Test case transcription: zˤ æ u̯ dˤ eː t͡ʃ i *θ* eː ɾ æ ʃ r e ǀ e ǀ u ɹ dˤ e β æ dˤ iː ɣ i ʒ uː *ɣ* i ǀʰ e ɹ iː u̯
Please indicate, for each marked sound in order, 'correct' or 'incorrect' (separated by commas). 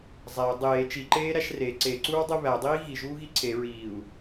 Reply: incorrect, correct